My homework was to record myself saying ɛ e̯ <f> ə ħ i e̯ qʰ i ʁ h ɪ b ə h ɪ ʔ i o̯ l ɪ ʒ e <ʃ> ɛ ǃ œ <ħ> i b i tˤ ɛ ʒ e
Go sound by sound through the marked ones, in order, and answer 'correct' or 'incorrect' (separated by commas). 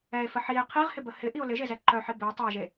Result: correct, incorrect, correct